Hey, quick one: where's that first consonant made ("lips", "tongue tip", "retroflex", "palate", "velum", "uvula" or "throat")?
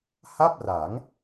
throat